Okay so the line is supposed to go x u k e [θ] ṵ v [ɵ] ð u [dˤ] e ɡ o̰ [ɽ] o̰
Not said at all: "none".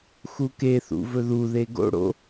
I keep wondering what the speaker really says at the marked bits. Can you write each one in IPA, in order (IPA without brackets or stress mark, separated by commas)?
θ, ɵ, ð, ɽ